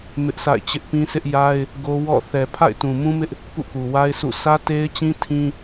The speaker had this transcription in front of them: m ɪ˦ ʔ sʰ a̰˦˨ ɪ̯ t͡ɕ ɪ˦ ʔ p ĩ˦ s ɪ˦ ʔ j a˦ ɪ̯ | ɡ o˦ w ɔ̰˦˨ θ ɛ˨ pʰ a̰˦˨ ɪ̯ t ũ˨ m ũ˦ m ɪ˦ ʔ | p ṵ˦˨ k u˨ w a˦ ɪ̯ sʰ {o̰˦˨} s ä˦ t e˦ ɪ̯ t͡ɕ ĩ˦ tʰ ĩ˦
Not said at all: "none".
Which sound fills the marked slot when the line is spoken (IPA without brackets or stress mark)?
ṵ˦˨